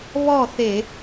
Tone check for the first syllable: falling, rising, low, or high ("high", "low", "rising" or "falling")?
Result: falling